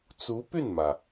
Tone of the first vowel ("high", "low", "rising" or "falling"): rising